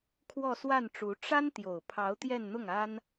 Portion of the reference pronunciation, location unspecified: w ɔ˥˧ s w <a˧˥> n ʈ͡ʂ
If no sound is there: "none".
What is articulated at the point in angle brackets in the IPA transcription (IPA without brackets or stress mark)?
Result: a˥˩